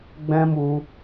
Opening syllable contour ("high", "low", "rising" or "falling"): high